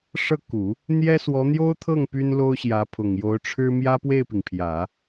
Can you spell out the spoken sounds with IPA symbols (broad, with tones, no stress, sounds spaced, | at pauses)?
ʂ ɤ˥˩ k u˨˩˦ | n̪ j ɛ˥ s w ɔ˧˥ n̪ j o˥ ʊ̯ t̪ʰ ɤ˥˩ ŋ p y˥ n l o˥ ʊ̯ ɕ j ä˧˥ pʰ ʊ˨˩ ŋ j o˧˥ ʊ̯ ʈ͡ʂʰ ɻ̩˥ m j ä˥ p w e˥˩ ɪ̯ p i˩ ŋ pʰ j ä˨˩˦